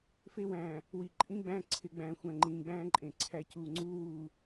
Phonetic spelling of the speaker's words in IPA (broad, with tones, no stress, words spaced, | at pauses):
fe˦wæ̃ː˨ | wi˨ǃʼĩ˦ɡ͡bæ̃ː˦ ǀʰɪ˨˦ɡ͡bæ̃ː˨ xʷæ̃˨ŋ͡ǃĩː˨ɡ͡bæ̃ː˦ ǃʼẽ˨ǀʰæ˦ cuː˨ŋ͡ǀuː˦wuː˨